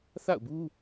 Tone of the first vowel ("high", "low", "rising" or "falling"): falling